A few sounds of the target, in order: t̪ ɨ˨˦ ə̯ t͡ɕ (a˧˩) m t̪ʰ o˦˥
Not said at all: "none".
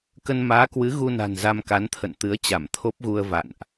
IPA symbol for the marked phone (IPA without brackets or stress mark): a˧˩